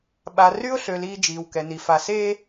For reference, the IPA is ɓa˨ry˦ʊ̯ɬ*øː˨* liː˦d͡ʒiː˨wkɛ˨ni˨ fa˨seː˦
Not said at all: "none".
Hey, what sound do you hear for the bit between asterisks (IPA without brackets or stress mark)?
ø˨